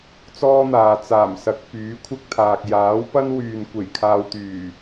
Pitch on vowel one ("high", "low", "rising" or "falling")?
high